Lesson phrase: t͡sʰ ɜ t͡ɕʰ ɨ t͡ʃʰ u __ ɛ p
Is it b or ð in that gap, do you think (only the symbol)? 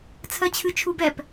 b